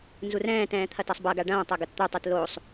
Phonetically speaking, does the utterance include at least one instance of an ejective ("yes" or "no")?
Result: no